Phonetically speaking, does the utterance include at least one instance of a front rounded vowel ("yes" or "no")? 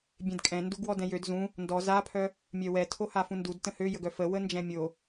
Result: yes